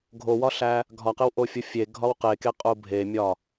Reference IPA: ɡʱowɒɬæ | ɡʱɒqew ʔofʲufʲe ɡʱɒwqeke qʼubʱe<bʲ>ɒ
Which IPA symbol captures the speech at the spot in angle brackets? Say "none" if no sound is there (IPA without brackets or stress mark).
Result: mʲ